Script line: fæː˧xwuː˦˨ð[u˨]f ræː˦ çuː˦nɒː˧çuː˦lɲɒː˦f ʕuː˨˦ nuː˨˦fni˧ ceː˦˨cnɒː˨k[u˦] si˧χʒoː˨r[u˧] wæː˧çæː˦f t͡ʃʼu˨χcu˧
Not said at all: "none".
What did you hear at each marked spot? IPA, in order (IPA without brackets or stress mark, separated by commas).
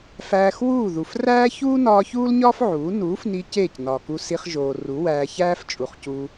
u˨, u˧, u˨˦